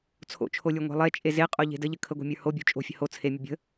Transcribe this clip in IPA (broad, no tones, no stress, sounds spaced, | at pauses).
t͡sʰ o̰ t͡ʃʰ o lʲ ə˞ ŋʷ e̤ lˠ e t͡ʃʼ e z e qʼ o ʎ e̤ d ə ʎ ə kʰ ə ɡʷ e̤ mʲ ə˞ h o bʲ o̤ t͡ʃʼ o̤ fʲ ə̤ h o t͡sʰ e mʲ ə bʲ ə̤